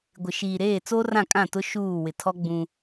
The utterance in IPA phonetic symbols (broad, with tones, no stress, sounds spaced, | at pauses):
ɡʷ ɪ˨ ʃ iː˨ ɾ eː˦˨ t͡s oː˦ r ã˦˨ kʼ ã˦˨ t ʊ˦ ʃ uː˦˨ w ɪ˨ tʰ ɔ˦ ɡ͡b ũ˦